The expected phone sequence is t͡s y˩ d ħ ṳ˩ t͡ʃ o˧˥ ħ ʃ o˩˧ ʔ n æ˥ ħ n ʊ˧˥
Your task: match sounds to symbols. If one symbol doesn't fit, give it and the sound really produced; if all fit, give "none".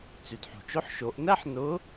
none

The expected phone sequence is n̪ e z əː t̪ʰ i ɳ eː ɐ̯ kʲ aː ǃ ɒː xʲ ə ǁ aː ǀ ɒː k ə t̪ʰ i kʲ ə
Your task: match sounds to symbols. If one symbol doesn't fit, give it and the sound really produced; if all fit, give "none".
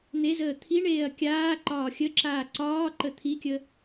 k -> ǃ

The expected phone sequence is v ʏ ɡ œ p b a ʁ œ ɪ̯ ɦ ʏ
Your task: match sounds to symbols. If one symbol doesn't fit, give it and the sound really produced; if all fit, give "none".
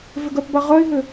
none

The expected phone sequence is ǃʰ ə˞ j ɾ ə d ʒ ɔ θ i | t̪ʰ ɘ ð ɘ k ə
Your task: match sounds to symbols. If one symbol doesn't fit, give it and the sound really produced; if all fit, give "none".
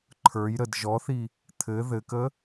none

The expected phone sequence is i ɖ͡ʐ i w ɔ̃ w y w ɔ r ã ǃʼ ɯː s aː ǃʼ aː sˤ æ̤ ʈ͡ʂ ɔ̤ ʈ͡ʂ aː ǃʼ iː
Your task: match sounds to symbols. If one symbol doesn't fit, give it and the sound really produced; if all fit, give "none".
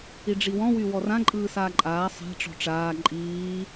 none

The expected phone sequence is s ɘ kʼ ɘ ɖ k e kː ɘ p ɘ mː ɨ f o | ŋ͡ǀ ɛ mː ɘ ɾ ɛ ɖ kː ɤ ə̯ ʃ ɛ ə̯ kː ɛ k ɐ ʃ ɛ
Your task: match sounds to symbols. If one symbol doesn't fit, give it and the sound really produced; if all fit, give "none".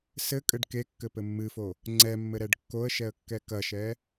ɤ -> o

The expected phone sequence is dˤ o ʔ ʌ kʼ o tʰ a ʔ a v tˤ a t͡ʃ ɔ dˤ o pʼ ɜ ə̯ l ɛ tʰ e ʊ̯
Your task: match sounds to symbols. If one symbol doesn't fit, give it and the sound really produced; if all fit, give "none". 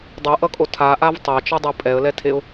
ɜ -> ɛ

